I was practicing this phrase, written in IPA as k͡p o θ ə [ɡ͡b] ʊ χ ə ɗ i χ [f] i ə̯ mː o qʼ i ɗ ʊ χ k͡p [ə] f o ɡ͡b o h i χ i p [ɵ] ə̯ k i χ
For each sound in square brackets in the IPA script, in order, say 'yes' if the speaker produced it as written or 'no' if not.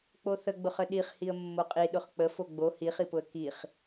yes, no, yes, no

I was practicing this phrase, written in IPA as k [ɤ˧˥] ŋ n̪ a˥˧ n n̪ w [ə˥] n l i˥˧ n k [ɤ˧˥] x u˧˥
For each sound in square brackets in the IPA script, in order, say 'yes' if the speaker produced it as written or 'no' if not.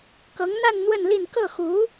yes, no, no

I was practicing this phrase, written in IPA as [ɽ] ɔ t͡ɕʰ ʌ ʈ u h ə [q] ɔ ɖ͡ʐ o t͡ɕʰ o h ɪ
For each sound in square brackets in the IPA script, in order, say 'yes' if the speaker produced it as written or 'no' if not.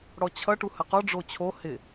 yes, yes

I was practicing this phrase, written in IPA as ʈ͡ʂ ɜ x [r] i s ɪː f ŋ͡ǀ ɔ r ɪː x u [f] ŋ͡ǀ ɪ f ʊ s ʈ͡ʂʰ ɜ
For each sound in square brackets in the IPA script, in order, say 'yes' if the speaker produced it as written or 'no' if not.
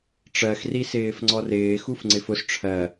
yes, yes

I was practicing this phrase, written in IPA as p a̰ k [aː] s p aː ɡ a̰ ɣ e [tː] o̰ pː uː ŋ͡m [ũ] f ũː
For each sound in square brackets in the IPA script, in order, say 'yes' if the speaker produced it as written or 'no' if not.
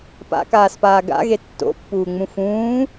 yes, yes, yes

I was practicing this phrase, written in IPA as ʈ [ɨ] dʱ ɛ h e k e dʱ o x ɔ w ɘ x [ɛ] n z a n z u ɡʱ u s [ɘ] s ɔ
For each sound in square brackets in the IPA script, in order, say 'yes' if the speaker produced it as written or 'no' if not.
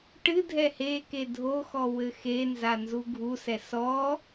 yes, no, no

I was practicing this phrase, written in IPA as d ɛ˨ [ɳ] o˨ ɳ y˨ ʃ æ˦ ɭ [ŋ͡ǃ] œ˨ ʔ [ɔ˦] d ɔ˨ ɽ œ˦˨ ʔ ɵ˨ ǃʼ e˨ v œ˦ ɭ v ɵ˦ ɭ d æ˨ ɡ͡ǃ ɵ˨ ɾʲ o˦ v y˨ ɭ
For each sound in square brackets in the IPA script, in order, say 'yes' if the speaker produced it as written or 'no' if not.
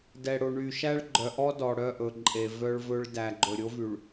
no, no, yes

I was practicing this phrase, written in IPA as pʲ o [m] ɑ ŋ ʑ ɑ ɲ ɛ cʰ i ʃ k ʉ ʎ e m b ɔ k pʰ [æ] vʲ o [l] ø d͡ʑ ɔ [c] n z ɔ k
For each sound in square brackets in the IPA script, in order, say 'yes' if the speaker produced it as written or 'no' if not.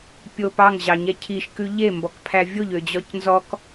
no, yes, no, yes

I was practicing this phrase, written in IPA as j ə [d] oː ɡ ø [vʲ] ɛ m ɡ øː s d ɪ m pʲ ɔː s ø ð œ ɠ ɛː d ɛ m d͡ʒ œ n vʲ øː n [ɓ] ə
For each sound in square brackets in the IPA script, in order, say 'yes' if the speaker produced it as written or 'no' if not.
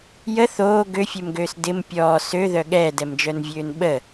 no, no, yes

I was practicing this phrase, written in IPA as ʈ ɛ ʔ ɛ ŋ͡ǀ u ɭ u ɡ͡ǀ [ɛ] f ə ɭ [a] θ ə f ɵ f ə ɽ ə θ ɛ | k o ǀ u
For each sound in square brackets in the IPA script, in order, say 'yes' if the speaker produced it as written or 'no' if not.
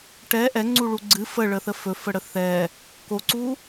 no, no

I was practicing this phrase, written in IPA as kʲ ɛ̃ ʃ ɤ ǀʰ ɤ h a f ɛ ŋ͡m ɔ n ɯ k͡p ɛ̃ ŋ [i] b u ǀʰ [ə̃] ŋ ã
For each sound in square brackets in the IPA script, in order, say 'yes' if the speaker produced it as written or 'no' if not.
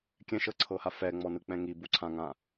yes, no

